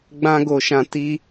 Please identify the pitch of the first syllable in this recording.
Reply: high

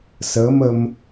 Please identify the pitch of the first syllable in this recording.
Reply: rising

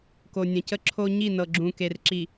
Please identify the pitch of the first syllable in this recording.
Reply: low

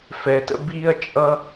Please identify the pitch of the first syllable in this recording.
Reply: low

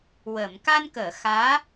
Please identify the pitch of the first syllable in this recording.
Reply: low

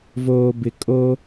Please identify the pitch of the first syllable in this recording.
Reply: low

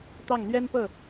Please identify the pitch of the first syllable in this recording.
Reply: falling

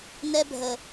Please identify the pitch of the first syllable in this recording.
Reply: high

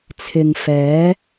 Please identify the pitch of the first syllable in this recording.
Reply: low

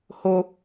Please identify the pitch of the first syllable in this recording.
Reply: high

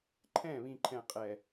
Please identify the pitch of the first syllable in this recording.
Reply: falling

